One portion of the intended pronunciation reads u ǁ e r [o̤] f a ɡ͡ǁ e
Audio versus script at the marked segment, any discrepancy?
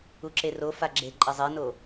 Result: yes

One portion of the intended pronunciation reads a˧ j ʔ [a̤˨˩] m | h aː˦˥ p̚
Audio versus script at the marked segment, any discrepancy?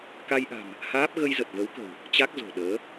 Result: no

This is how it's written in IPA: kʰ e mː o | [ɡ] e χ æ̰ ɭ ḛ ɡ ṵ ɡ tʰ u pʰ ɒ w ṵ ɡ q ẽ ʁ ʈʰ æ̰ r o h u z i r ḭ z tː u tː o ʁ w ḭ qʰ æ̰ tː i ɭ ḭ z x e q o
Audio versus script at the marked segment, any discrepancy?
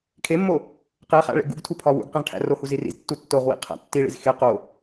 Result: yes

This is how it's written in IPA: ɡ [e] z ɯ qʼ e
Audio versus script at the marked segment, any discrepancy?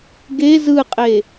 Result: no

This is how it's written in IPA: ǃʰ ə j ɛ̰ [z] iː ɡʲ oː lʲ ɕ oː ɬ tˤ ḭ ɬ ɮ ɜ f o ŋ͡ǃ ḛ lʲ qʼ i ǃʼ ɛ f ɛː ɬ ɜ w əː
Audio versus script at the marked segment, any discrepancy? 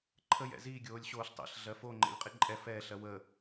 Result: no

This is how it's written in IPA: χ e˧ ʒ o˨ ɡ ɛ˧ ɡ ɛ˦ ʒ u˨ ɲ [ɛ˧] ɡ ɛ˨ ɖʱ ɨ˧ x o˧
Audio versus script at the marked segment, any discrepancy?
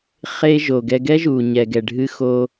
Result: yes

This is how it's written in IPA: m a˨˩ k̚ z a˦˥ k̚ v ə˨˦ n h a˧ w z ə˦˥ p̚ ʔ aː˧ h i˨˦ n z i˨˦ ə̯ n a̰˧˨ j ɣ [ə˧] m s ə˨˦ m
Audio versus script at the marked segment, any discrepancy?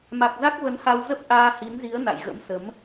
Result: yes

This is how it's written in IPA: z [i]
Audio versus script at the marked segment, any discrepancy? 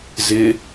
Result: yes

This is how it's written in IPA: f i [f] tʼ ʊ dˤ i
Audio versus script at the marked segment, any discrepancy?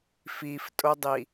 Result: no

